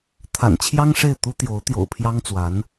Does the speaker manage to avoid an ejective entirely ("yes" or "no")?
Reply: yes